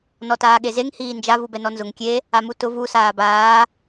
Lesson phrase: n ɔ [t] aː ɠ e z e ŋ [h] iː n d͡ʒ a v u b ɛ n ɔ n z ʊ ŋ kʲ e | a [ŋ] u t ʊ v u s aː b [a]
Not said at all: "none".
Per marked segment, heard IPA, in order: t, h, m, aː

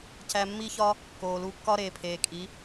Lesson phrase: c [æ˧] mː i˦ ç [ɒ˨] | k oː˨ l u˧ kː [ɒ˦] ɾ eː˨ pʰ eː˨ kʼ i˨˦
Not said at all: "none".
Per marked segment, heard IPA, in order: æ˧, ɒ˦, ɒ˦

